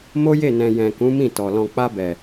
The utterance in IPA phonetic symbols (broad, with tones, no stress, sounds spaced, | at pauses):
m o˦ j e˦˨ n ɛ̃˨ j ɛ̃˨ k ũ˨˦ m ĩ˦˨ t ɔ˨ l ɔ̃˨ k͡p a˧ b ɛ˨